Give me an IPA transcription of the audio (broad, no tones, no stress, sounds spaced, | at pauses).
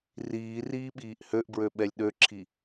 r iː r iː ɓ iː ʔ h ø ʔ b ɹ ø ɓ ɛ lʲ ɗ ø ǁʰ i